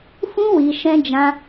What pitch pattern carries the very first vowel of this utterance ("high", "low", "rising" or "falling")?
high